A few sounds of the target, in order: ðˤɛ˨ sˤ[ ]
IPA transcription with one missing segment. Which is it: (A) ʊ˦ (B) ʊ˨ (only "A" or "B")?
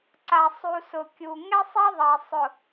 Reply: B